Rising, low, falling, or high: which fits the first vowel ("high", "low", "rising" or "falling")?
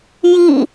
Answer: falling